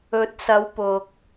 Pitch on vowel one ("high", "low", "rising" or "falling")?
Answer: rising